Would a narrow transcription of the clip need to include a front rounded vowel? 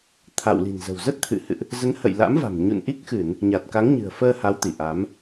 no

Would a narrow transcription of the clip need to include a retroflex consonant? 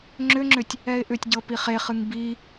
no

